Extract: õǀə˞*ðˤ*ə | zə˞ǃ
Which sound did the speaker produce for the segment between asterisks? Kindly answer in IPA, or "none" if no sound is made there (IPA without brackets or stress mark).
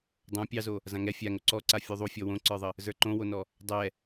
ðˤ